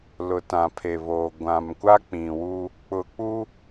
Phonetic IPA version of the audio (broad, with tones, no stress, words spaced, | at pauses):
lʊ˨tã˨pʰe˨βoː˨ ɡʷã˨mkʷa˦ k͡pĩ˨wu˦ | k͡pʊ˨k͡pu˦